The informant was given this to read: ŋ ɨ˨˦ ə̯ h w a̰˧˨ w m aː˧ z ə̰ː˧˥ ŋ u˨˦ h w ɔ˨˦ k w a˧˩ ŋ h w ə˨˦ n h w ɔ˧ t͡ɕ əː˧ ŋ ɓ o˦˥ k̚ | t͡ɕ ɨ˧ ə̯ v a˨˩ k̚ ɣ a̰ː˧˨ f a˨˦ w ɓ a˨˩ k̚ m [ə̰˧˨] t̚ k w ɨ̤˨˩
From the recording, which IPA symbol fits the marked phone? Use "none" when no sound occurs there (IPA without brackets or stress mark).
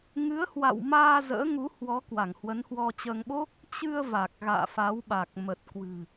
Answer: ə˨˩